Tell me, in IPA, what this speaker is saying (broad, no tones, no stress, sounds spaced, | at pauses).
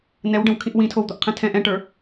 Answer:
n ɛ w ɖ ə̃ w kʰ ĩ ʔ w ĩ tʰ o w d̪ o ʔ qʰ ɛ̃ tʰ ɛ̃ ʔ ɛ̃ ʈ ə˞